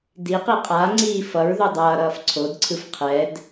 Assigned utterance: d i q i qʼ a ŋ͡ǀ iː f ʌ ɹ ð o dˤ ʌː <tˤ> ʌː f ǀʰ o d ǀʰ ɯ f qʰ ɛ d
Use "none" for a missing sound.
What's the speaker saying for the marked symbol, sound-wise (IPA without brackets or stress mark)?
ɾ